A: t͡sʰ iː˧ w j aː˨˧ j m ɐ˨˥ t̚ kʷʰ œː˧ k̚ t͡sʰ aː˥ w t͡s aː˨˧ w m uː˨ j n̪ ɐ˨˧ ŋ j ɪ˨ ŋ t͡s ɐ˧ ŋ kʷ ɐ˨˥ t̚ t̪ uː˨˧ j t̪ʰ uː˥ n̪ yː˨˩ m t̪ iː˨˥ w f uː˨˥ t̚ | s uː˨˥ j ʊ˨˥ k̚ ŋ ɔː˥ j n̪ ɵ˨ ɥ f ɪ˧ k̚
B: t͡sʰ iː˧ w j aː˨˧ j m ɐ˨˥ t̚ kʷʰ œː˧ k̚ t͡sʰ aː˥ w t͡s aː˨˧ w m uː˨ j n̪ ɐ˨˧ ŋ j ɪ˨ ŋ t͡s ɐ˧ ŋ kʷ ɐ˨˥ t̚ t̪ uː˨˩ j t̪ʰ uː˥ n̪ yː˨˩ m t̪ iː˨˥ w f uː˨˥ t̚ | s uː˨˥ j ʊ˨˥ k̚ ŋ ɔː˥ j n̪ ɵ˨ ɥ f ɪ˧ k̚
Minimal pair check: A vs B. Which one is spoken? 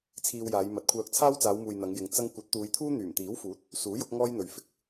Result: A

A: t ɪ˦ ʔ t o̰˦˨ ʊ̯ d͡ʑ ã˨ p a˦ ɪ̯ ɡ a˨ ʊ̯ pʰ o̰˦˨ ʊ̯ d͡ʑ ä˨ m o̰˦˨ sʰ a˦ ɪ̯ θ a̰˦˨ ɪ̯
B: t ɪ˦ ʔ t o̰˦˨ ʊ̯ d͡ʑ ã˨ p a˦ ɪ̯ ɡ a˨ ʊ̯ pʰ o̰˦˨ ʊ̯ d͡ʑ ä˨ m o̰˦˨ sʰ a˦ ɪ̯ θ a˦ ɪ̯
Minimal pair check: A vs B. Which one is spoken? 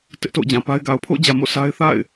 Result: A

